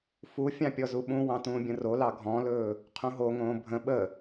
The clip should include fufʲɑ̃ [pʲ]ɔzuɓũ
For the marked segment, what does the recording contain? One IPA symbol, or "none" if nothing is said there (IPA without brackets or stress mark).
pʲ